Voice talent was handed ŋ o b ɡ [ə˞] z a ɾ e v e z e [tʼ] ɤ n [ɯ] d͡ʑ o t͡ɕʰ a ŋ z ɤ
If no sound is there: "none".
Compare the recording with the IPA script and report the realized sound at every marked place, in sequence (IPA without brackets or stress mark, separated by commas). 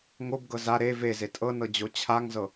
ɤ, tʼ, ɤ